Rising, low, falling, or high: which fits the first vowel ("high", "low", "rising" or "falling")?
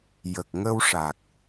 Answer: low